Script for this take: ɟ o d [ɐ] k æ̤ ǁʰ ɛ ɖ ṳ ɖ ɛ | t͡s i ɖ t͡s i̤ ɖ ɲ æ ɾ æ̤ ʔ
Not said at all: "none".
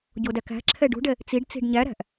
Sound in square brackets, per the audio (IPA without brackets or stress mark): æ